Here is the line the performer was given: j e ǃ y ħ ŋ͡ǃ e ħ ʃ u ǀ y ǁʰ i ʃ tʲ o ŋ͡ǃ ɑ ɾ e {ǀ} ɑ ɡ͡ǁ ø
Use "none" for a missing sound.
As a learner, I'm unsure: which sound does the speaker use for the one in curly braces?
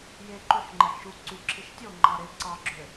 ǀ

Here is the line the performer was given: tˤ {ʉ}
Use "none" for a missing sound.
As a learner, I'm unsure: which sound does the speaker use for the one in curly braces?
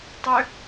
ø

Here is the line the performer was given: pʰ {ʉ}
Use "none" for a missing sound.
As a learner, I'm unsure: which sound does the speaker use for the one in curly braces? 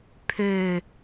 ø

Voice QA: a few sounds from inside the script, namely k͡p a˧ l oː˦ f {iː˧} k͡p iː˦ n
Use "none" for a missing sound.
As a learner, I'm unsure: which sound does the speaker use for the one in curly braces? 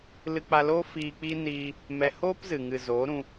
iː˧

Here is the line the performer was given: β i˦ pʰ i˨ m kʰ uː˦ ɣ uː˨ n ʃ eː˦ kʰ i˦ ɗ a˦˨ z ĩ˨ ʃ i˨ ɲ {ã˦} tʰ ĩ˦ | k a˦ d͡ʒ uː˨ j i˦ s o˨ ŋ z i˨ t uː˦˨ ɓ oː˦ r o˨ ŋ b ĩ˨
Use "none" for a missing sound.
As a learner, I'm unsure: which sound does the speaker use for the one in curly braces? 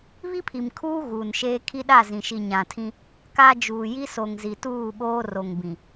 ã˨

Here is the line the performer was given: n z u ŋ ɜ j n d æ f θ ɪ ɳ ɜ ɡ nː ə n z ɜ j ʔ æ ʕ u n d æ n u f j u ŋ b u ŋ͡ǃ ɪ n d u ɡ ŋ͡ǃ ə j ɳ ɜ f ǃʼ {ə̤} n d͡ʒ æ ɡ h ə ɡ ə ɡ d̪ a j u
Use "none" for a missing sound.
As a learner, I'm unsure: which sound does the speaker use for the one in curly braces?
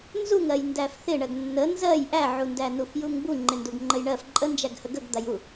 ə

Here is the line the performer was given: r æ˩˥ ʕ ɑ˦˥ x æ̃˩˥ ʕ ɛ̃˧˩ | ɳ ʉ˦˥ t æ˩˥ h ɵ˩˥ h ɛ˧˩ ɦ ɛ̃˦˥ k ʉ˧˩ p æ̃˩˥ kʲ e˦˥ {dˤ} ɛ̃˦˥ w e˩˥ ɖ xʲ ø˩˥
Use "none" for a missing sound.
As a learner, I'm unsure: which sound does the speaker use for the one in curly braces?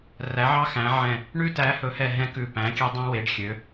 dˤ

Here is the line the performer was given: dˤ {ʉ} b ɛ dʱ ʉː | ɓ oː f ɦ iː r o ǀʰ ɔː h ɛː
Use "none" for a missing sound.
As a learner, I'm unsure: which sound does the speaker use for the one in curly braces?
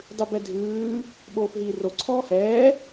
ʉ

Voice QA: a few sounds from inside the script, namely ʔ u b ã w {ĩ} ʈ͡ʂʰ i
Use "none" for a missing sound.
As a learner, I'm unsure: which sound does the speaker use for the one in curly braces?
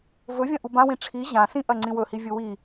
ĩ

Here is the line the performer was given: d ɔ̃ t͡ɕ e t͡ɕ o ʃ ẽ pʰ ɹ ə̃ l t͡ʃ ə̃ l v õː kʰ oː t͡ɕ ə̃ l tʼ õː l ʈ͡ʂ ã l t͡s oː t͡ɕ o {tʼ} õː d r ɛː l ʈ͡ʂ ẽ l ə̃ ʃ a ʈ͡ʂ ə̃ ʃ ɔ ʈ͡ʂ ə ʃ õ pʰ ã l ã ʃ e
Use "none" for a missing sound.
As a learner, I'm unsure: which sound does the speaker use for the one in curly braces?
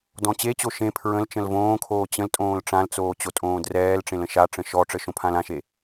tʼ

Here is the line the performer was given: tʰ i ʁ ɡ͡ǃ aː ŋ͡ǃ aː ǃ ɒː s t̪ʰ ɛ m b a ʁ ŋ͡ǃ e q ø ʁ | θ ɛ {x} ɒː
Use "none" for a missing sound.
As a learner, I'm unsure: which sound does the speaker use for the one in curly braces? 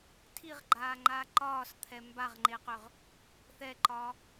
ǃ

